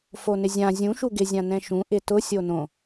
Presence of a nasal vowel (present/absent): present